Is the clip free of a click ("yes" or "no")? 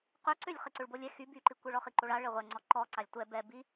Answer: no